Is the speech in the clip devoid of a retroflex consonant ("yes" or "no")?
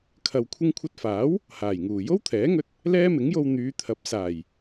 yes